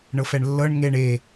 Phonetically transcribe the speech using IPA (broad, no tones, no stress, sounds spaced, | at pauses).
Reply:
ɳ ɤ f ɛ ɳ lː ɤ ɳ ŋ e ɳ e